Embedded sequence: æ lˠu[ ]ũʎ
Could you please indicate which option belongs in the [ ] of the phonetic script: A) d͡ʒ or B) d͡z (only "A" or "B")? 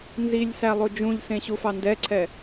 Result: A